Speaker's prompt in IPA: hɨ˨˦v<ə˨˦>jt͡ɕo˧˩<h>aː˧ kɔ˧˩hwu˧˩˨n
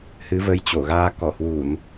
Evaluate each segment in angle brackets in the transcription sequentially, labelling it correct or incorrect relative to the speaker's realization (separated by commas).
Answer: incorrect, incorrect